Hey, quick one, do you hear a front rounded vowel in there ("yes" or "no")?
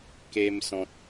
no